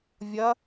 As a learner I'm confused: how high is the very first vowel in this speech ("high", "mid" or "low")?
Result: low